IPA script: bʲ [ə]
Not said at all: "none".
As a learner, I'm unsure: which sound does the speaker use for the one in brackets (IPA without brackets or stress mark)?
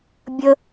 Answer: ə